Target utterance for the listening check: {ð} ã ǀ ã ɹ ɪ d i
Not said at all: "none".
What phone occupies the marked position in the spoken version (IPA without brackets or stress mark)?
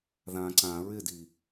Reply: ð